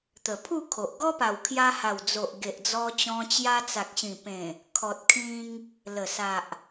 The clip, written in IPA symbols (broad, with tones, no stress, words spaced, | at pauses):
t̪ə˨˩pʰu˥˧kʰo˨ʔ ɡɔ˦pa˨˩wkʰja˧ ha˨˩wd͡zo˨ʔ ɡe˨ʔd͡zɔ˧t͡ɕɔ̃˧ t͡ɕja˧t͡sa˨k̚ɕĩ˨˩pẽ˨˩ | kʰɔ˨t̚kʰĩ˧ŋ | lə˨˩sa˨ʔ